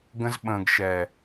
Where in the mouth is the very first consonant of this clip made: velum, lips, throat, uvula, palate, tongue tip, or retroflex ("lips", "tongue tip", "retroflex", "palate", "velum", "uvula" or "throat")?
velum